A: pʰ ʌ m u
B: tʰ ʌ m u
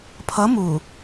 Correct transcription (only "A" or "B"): A